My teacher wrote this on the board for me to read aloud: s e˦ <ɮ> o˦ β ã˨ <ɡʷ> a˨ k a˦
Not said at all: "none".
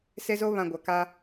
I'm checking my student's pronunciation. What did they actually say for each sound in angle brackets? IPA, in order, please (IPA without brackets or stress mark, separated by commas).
z, ɡʷ